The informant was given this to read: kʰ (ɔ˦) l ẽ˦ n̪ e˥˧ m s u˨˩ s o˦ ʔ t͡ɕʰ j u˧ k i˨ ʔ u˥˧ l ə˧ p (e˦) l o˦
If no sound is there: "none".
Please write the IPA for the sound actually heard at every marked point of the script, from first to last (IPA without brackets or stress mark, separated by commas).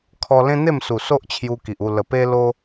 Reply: ɔ˧, e˦